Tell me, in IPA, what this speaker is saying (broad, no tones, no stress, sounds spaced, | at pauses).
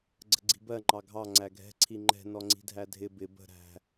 ɡ͡ǀ ə̤ ɡ͡ǀ i̤ b ɜ ŋ͡ǃ ɑ ɡʱ ɑ ŋ͡ǀ æ ɡʱ ɛ̤ ǀʰ i ŋ͡ǃ ɛ̤ n ɔ ŋ͡ǀ i̤ dʱ æ dʱ ɪ b ɪ b ə̤ ɾ æ̤